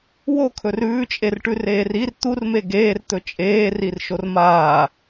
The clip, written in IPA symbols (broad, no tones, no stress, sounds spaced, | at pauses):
w o kʰ ɵ r ʉː t͡ʃʼ e r ʈ ʉ r eː r i r t̪ u r m e ɡ eː r t̪ ɵ t͡ʃʼ eː r i r ʃ o r m aː